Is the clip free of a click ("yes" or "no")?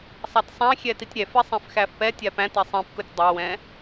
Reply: yes